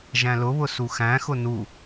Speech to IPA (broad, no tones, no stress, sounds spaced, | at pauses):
ʒ æ̃ l ʊ β ʊ s u x æ̃ x ʊ n u